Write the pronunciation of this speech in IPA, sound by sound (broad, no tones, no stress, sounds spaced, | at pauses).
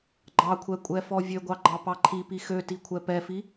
ɡ͡ǃ ɑ kʷʰ ɛ kʷʼ ɛ f ɔ vʲ ø ɡʷ ɑ ɡ͡ǃ ɑ p ɑ ǃʰ i p i x ø t i kʷʰ ɛ p ɛ f i